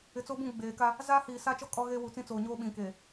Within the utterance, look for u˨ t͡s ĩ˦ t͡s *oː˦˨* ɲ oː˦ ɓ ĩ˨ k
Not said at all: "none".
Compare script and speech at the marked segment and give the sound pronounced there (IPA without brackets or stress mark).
oː˨